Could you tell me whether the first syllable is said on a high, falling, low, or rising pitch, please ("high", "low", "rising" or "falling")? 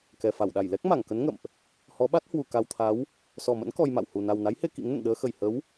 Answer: low